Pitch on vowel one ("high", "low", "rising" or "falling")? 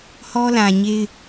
high